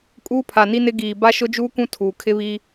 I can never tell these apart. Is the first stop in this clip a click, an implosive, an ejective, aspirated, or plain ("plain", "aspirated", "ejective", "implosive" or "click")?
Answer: ejective